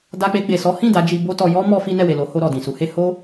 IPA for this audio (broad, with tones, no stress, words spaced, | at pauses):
da˧k͡pe˧ɡ͡be˨ sɔ˨˦hĩ˦˨ da˨˦d͡ʒi˧bo˦tɔ˧ jɔ˦ mɔ˦fi˦ nɛ˦˨we˨lo˨˦ho˧ ɾɔ˨dĩ˨su˨˦he˦ ho˦